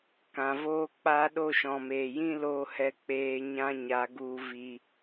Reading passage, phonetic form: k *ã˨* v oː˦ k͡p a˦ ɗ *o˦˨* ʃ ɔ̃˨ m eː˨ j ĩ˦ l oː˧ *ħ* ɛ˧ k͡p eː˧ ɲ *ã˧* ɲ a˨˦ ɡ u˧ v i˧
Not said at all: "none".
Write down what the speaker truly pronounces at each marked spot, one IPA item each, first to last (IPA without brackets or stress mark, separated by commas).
ã˨, o˦˨, h, ã˦